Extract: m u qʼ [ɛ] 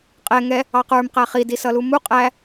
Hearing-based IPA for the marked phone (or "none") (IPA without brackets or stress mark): æ